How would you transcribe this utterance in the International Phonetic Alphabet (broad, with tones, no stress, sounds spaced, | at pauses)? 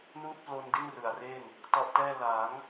n uː˥˩ t̚ p l o˧ n d i˥˩ n r ɯ˩˦ a̯ r e˥˩ n | t ɔ˦˥ ʔ t ɛː˥˩ l a˩˦ ŋ